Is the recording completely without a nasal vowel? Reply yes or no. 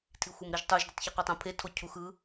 no